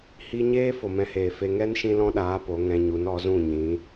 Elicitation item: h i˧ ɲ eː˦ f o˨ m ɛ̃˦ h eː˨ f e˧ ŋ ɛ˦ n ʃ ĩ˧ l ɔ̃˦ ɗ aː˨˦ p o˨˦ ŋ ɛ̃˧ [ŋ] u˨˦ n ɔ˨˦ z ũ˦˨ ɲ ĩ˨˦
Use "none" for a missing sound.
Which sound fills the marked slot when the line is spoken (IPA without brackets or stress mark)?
ɲ